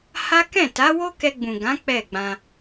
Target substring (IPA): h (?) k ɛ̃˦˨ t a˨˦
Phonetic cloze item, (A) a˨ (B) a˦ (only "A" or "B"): B